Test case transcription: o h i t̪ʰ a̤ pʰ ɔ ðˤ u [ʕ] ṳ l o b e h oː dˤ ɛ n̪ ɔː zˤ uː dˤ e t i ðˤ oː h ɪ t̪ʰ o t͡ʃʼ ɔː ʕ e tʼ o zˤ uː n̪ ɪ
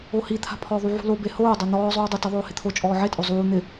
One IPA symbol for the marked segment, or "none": ʕ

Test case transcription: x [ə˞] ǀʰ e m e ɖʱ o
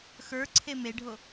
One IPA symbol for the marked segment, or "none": ə˞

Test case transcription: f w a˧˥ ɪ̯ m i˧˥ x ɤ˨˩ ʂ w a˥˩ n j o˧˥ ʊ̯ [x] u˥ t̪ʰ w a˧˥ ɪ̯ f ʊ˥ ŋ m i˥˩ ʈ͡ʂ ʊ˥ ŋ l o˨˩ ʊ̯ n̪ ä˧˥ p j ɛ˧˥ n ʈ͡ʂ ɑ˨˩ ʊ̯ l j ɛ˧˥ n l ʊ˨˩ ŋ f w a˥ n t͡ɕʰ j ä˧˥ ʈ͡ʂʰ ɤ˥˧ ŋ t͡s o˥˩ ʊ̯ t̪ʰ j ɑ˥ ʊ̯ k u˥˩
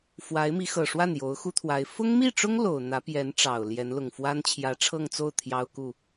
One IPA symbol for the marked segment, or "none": x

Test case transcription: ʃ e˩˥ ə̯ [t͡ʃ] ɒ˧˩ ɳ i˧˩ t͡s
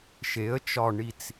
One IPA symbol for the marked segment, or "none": t͡ʃ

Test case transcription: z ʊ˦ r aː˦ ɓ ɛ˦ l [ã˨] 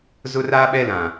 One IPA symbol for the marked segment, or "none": ã˨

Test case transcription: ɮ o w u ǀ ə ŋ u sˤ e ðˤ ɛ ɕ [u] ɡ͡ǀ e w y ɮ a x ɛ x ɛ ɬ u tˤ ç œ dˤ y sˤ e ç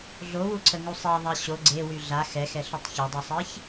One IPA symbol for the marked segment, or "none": o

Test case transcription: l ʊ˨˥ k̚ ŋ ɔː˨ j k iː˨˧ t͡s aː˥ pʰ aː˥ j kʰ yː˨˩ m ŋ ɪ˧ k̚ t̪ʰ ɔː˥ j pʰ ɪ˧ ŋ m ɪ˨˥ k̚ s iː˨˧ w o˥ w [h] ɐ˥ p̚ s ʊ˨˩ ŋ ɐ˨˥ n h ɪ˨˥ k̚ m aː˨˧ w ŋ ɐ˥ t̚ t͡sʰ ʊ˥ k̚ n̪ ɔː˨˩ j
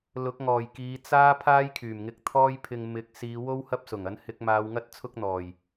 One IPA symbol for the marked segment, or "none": h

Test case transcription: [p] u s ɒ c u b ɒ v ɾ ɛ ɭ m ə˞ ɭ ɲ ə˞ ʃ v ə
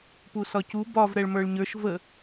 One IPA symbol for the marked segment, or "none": p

